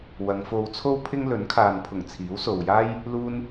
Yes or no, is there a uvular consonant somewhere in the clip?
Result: no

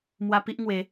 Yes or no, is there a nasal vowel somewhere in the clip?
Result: no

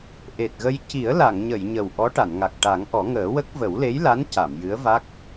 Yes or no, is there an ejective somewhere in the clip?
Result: no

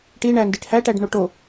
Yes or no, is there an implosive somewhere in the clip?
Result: no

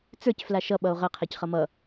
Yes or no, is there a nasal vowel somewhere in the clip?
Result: no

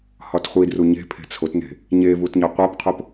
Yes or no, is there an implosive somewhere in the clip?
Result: no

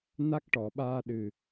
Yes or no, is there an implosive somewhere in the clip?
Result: yes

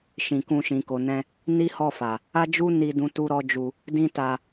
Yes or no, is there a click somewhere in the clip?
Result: no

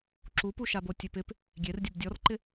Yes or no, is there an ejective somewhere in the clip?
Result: no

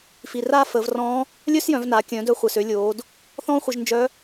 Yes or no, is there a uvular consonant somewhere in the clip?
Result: yes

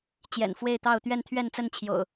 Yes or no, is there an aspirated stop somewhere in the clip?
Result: yes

